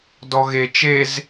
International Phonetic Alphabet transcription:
d ɔ ɣ e t͡ʃ e z

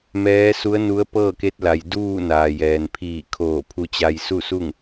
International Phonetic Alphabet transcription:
m ɛː˧˥ s u˧˥ ə̯ n u˧˥ ə̯ p ɤː˥˨ k e˧˥ t̚ l a˩ j d uː˥˨ n aː˩ j ɛː˩ n pʰ iː˧˩ kʰ oː˧˩ pʰ u˧ t͡ɕ a˧ j s u˥˨ s u˥˨ ŋ

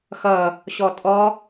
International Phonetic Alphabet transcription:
x ʌ | ɕ ɔ tʼ ɔ

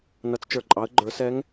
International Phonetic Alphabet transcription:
n ʌ˩˧ t͡s t͡ʃ ə˞˩ ǃʼ ɑ˩˧ ə̯ ɡ͡ǃ ə˞˩˧ s ɛ˧˥ ŋ

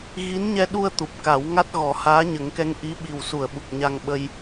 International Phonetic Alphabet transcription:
ɣ i˧˥ n ɲ ɛ˧ ɗ u˧ ə̯ t̪ u˨˩ p̚ k a˨˩˦ w ŋ a˦˥ t̚ ɣ ɔ˨˩˦ h aː˧˥ ɲ ə˨˩˦ ŋ k ɛ˧˥ ŋ ʔ i˧˥ ɓ i˨˩ w s u˨˩˨ ə̯ ɓ u˨˩ k̚ ɲ a˧ ŋ ɓ ə˧ j

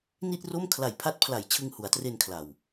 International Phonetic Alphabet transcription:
n i˥˩ t̚ r o˥˩ m kʰ l a˨˩ j pʰ a˦˥ t̚ pʰ l a˨˩ j t͡ɕʰ ɯ˧ ŋ h u˩˦ a̯ t r e˧ n kʰ l a˨˩ w

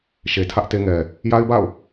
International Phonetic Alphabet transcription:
ʃ e˨ tʰ ä˦ ʔ t e˦ ŋ ɛ˨ | j a˦ ɪ̯ b a̰˦˨ ʊ̯

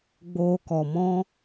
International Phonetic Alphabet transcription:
ɡ͡b oː˧ k ɔ˨ m ɔ̃˦

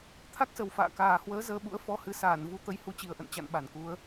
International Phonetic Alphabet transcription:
t̪ʰ a˦˥ k̚ s ə˨˩ w f a̰ː˧˨ k aː˨˩ h w əː˨˦ z əː˧ ɓ ṵ˧˥ ə̯ f ɔ˧ h ɨ˨˦ s aː˧˩ n v u˧ t̪ ə˨˦ j h u˨˦ t͡ɕ i˨˩ ə̯ ʔ ə̰˧˨ n t͡ɕ a̰˧˨ n ɓ a˧˩ n k u˨˦ ə̯

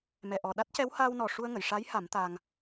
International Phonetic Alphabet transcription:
m ɛ˨˩ ʔ ɔ˨˩ ɗ a˦˥ t̚ c ɛ˧˥ w h aː˧ w n ɔ˨˩ ʂ u˧ ə̯ ŋ ə˨˩˨ j ʂ a˧˥ j h a˨˩˦ m t̪ aː˧ ŋ

